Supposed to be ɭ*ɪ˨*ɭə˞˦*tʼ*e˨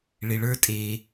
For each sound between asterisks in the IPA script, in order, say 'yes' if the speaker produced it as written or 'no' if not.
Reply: yes, yes

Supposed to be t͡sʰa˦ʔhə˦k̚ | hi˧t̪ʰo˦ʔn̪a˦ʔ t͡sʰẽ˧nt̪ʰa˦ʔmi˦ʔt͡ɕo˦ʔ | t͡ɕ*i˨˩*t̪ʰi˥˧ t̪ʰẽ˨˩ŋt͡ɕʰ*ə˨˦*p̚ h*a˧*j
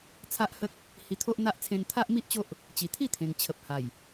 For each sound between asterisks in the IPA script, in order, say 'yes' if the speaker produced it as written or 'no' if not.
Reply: yes, no, no

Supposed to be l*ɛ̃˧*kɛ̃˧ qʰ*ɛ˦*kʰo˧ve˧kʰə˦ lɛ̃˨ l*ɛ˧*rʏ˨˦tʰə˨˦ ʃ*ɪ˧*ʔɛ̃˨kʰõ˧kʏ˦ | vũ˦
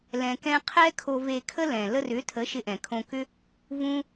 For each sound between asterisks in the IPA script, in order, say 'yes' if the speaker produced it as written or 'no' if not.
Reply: no, yes, no, yes

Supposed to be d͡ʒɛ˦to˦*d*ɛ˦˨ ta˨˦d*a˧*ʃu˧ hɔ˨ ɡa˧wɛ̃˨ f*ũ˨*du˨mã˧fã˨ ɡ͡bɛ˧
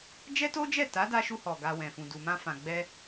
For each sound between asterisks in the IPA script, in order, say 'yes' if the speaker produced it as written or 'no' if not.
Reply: no, yes, yes

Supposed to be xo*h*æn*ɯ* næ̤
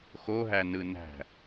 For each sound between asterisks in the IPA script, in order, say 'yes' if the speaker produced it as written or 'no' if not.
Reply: no, yes

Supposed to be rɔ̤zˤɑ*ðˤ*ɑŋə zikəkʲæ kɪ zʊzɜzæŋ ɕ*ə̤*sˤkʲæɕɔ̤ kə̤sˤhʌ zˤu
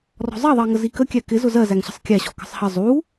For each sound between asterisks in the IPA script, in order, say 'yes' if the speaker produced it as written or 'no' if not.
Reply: yes, yes

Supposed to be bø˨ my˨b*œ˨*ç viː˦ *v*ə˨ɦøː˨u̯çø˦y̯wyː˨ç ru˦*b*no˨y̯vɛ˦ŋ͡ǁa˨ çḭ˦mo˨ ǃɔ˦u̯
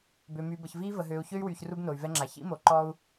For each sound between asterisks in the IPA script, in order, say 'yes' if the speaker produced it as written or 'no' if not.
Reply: no, yes, yes

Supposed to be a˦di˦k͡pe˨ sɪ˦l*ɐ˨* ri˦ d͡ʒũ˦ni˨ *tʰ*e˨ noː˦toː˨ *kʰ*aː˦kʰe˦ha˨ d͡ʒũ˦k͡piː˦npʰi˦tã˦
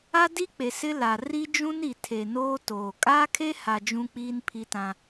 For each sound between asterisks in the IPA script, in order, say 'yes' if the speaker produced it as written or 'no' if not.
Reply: no, yes, no

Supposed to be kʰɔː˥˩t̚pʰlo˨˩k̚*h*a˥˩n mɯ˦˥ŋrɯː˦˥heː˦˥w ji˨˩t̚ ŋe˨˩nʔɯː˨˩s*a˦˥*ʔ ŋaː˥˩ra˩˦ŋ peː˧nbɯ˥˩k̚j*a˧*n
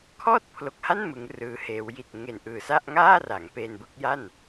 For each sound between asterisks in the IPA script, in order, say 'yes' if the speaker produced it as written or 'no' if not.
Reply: yes, no, no

